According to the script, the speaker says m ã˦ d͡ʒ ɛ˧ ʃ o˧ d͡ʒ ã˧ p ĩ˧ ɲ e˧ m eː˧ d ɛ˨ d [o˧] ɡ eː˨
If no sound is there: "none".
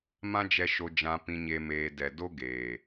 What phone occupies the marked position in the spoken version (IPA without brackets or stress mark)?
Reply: o˦